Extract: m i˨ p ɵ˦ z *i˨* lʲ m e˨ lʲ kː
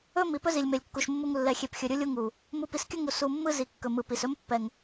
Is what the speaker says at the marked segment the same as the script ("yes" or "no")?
yes